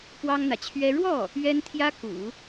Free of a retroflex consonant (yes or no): no